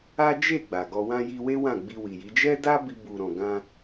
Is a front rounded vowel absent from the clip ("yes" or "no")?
yes